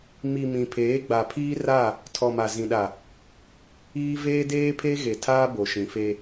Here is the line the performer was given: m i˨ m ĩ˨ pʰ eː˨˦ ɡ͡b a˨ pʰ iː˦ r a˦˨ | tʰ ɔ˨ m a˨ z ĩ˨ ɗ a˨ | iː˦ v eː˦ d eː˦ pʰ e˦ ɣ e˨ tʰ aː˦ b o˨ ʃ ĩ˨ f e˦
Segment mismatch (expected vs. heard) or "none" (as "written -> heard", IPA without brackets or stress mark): none